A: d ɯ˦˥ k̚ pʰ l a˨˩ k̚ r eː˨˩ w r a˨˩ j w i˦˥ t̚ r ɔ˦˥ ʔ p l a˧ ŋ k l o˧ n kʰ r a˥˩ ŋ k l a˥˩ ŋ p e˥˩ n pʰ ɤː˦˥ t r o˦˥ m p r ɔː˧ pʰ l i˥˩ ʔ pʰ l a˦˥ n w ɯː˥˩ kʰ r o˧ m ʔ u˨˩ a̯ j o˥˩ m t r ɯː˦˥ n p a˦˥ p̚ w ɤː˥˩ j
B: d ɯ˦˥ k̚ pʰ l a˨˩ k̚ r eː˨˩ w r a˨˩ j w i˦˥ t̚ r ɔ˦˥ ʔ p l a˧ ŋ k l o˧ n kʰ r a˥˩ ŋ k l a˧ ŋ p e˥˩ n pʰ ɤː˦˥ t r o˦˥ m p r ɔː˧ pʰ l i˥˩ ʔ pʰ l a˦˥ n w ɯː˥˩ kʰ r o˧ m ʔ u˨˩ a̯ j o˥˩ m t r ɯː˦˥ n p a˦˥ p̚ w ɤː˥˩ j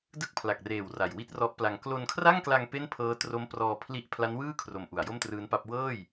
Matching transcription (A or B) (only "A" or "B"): B